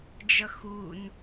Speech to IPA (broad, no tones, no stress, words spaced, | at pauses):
d͡ʒʌxun